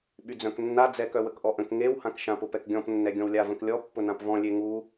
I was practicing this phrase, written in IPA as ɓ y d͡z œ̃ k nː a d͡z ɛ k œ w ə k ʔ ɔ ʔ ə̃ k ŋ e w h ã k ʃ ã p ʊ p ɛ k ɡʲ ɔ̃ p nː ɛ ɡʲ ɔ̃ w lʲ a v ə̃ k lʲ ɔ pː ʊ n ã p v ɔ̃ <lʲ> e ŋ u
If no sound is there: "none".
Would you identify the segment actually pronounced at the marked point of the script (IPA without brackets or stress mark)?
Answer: lʲ